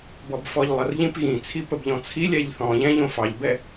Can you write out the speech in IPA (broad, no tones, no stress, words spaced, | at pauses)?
bɔbfɔʎlˠərʎĩp ɣĩt͡sʰi pəbʎɔ̃t͡sʰilʲɛʎ θɔ̃ʎɛ̃ ʎõfɑʎbɛ